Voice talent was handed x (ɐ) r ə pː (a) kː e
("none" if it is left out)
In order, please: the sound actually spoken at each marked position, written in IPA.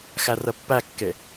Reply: æ, æ

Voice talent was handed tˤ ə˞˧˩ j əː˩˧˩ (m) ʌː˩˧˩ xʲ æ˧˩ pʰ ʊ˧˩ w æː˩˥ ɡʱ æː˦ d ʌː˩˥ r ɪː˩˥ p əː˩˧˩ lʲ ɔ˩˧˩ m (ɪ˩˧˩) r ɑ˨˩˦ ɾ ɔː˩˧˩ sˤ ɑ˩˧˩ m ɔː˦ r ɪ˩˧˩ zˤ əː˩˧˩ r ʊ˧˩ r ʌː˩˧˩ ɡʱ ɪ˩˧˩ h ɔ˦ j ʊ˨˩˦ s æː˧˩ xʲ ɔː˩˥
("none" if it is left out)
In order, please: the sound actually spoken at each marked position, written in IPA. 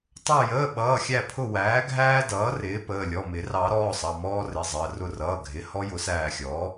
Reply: ɓ, ɪ˨˩˦

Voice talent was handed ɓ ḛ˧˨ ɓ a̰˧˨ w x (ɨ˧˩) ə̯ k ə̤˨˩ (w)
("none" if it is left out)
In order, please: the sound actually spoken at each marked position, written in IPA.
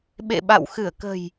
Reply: ɨ˧˩, j

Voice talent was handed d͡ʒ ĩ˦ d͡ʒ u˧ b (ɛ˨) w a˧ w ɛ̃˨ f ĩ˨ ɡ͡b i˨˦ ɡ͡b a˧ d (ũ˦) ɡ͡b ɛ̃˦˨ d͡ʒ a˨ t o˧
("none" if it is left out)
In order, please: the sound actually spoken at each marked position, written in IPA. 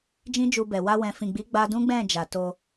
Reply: ɛ˨, ũ˦

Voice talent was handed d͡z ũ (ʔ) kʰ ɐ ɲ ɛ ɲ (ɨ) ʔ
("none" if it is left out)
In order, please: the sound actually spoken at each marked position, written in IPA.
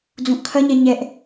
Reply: ʔ, ɛ

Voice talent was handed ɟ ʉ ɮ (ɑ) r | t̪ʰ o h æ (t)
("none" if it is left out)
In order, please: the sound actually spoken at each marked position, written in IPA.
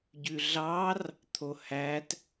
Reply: ɑ, t

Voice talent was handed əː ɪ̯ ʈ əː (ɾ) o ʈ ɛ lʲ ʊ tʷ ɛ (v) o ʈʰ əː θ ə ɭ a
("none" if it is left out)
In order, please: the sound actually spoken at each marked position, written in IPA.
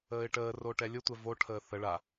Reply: r, v

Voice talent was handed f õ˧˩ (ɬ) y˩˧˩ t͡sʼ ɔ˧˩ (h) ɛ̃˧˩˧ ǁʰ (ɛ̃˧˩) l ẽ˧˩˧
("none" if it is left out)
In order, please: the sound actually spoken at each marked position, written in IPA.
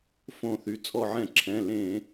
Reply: θ, ʕ, ɛ̃˩˧˩

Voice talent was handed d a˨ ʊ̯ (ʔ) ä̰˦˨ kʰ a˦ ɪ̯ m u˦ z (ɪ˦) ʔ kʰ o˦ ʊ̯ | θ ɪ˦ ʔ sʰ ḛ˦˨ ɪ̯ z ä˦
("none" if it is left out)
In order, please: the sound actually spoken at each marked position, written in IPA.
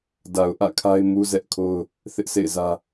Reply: ʔ, ɛ˦

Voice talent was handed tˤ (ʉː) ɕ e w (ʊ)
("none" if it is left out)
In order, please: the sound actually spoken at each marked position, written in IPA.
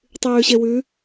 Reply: ʉː, ʉ

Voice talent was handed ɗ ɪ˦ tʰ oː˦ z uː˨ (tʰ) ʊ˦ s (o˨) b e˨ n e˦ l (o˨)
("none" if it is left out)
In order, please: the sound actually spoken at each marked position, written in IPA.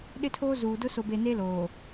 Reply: d, o˨, oː˨

